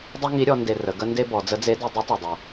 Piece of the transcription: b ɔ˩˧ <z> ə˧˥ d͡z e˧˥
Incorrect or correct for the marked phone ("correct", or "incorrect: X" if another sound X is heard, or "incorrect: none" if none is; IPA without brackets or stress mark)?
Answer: incorrect: d͡z